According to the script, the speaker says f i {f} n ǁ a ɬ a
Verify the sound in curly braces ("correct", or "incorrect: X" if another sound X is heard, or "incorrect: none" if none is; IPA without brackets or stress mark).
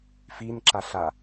incorrect: none